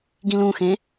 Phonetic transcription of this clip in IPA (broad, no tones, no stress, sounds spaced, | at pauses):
ɡ ĩ l ũ x ẽ